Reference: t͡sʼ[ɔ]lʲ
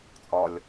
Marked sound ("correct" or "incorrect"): correct